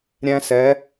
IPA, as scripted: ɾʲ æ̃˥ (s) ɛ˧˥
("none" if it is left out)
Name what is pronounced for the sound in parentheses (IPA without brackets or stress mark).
s